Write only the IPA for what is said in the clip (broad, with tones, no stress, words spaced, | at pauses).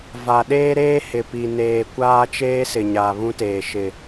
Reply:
va˨ɗeː˦ɾeː˦ hɪ˨pi˨ neː˨ kʷaː˦t͡ʃeː˦ sɪ˨ɲaː˨βũ˦teː˨ ʃɪ˨